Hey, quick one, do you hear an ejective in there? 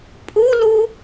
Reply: yes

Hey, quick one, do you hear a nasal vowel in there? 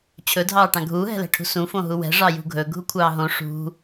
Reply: yes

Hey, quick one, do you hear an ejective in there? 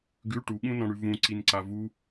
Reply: no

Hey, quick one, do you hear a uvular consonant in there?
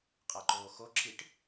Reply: yes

